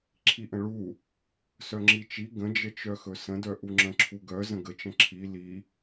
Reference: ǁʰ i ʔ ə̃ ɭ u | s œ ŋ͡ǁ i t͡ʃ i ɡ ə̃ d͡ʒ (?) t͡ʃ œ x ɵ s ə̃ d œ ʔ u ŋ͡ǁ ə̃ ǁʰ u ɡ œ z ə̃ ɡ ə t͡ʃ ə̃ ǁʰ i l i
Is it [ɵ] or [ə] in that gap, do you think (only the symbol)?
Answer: ə